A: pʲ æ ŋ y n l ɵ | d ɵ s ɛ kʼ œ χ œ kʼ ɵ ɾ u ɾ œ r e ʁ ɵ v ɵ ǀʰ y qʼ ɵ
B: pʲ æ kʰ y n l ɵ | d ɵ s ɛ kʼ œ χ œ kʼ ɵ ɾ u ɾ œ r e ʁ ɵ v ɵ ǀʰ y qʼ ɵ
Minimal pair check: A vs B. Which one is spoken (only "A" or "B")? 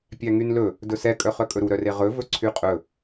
A